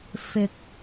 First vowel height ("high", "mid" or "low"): high